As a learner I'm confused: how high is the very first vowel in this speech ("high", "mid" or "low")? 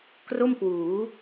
mid